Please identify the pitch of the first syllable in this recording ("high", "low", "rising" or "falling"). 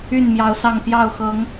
falling